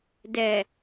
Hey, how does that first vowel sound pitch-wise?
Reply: low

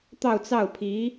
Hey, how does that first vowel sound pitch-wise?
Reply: falling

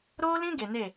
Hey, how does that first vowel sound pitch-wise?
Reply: high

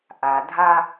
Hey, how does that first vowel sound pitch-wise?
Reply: low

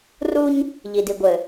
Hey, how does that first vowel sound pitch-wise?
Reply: high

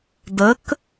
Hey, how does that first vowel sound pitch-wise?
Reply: rising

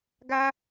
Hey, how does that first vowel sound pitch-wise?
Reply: high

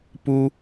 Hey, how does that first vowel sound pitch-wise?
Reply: high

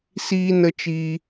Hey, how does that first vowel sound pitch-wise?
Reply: high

